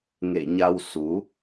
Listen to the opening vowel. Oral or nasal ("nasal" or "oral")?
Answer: oral